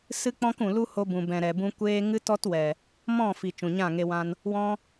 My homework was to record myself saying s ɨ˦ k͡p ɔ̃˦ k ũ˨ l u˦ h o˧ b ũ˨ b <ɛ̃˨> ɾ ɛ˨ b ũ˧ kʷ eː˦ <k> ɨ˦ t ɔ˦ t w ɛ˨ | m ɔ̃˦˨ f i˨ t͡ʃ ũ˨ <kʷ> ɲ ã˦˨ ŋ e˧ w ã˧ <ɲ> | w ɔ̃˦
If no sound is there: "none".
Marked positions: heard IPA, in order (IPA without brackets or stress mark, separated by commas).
ɛ̃˨, ŋ, none, n